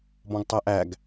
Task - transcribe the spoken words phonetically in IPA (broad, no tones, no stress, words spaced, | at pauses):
bɔ̃ɡtˤæʔæɡ